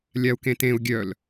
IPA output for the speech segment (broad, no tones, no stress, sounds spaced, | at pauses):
lʲ a u̯ k ẽ t ẽ u̯ ɡʲ œ l